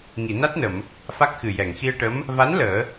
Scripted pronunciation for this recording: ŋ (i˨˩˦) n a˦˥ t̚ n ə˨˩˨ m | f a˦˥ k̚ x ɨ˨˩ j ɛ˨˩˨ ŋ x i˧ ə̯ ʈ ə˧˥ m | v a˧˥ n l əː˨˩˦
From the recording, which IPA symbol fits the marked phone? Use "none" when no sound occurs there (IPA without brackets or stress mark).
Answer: i˨˩˨